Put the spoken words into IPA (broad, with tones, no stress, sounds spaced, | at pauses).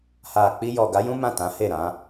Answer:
h a˨ k͡p i˧ j ɔ˨ ɡ a˨˦ j ũ˦ m ã˦˨ t ã˨˦ h e˦˨ ɾ ã˨˦